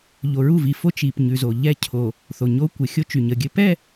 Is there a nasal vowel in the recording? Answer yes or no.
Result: no